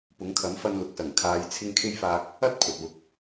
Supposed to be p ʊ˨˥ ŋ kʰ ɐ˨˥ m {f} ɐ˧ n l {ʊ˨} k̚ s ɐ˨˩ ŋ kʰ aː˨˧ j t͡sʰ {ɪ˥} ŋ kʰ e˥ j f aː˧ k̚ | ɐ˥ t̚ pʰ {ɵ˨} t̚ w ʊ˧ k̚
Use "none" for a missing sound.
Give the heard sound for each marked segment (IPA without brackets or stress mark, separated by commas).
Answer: f, ʊ˨, ɪ˥, ɵ˨